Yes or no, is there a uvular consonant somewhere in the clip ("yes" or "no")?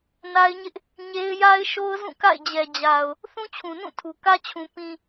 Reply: no